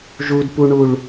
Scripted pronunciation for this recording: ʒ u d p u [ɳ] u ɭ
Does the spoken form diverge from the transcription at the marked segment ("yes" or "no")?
no